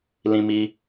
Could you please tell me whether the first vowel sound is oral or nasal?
nasal